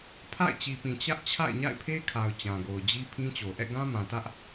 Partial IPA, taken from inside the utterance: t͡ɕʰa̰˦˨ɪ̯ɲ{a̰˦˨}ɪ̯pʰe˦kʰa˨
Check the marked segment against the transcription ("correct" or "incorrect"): correct